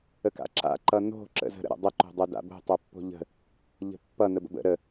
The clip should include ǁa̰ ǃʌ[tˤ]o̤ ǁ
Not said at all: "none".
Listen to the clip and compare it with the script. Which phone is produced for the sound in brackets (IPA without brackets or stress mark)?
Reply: n